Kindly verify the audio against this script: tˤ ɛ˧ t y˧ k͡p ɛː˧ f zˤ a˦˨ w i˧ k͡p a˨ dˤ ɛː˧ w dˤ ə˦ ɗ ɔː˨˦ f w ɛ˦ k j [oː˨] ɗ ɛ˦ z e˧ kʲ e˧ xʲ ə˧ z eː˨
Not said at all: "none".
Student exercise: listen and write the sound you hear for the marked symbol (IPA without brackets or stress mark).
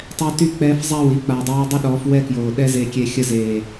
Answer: oː˨